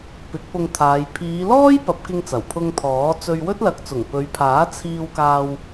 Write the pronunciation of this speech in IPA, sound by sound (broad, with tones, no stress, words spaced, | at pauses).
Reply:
pɪ˨˥k̚pʊ˧ŋt̪ʰaː˨˧j pʰiː˨˧lɔː˥j pɐ˨˥p̚kɪ˧ŋt͡sɐ˨˩w pʰʊ˧ŋt̪ʰɔː˨˥ t͡sɵ˧ɥwɵ˥t̚ lɐ˨˥k̚t͡sʊ˨˩ŋpɵ˨˧ɥpʰaː˨˥ t͡sʰiː˧wkaː˧w